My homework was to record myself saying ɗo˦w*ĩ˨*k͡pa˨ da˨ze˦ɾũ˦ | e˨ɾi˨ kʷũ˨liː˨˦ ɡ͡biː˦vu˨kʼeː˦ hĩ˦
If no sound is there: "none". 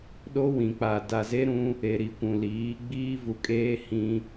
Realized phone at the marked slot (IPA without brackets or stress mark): ĩ˨